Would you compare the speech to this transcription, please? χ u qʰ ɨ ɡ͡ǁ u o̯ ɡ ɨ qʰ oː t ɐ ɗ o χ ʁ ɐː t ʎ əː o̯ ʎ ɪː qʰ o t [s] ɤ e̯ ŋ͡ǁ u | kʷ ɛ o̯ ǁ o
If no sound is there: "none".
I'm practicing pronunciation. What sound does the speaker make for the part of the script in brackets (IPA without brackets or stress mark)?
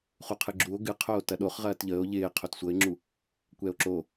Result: sʷ